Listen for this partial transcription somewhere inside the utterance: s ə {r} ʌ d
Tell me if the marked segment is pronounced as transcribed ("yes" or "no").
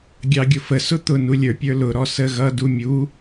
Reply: no